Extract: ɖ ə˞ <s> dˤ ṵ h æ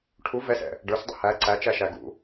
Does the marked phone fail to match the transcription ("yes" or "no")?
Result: no